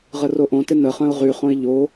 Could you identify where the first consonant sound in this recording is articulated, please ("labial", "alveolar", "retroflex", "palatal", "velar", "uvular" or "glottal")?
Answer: uvular